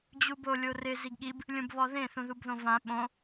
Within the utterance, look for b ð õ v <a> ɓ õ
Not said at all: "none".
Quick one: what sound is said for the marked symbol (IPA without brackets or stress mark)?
ã